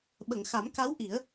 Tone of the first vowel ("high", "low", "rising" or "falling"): low